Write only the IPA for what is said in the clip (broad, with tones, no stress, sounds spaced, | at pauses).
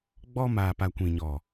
ɡ͡b ɔ˦ m aː˨ p a˨ kʷ ĩ˨ ɲ ɔ˨